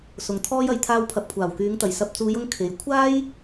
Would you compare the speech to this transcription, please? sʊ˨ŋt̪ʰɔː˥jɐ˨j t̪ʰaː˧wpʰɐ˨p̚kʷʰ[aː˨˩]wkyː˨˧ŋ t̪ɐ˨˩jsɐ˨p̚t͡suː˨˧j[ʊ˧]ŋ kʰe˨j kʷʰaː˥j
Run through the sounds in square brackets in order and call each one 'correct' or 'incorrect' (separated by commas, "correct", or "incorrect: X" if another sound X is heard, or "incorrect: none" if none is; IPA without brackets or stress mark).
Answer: correct, correct